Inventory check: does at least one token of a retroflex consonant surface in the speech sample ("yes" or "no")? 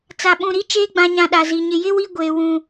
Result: no